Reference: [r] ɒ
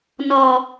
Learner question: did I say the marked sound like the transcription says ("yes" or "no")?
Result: no